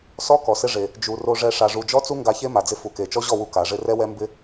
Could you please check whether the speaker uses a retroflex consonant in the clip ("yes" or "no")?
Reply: yes